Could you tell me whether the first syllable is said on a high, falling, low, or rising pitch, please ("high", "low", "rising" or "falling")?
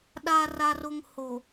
low